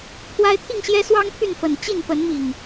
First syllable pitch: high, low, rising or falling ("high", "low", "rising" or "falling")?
high